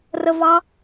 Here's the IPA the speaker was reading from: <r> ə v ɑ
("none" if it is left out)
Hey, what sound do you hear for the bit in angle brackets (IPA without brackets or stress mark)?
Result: r